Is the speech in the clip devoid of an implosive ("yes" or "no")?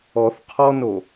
yes